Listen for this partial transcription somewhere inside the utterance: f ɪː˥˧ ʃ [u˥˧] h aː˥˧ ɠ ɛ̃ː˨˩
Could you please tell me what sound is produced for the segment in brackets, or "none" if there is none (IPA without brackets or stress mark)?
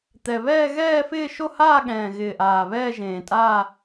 o˥˧